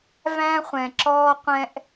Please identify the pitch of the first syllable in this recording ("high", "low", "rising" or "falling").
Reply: high